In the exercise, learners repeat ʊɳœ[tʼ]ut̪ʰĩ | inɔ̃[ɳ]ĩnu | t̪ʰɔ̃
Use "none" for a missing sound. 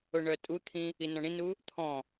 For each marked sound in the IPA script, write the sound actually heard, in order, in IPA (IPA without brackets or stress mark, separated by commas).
tʼ, ɳ